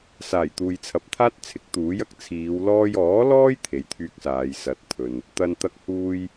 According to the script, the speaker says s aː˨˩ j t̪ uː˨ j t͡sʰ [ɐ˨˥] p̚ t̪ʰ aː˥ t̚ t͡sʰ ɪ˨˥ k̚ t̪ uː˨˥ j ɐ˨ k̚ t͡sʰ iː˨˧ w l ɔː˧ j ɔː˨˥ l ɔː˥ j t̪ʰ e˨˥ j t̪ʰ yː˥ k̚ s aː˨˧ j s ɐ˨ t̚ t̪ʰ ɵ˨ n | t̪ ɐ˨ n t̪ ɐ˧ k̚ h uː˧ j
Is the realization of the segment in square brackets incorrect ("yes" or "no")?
no